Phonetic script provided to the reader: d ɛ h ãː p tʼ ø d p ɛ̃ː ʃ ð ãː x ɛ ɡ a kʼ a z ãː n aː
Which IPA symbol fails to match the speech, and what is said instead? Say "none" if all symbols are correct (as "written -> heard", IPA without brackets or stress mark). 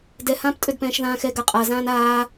kʼ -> qʼ